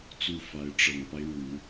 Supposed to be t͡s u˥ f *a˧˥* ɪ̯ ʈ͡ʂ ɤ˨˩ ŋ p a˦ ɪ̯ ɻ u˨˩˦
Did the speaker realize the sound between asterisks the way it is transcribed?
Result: yes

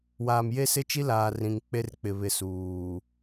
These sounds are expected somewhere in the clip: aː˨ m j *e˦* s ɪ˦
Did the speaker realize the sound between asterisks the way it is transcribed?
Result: yes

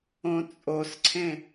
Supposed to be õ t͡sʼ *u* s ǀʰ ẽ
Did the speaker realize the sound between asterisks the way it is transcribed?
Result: no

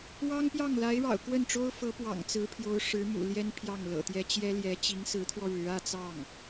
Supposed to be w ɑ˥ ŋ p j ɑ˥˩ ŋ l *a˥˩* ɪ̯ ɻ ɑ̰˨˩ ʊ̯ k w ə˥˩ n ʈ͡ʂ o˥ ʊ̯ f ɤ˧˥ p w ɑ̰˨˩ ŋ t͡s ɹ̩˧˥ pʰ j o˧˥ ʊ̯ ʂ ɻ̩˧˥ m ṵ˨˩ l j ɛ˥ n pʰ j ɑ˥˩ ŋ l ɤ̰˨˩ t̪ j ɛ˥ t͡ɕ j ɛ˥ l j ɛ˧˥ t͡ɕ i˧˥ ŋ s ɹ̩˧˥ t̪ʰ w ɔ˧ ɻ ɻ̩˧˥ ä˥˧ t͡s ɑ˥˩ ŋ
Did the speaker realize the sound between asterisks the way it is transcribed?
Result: no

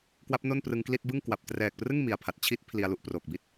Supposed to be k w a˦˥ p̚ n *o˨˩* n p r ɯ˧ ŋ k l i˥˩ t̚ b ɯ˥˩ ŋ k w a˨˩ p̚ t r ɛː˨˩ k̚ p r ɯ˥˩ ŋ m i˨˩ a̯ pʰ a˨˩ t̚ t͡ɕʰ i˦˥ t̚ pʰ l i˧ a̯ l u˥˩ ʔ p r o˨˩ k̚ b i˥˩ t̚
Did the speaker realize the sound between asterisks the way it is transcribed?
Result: no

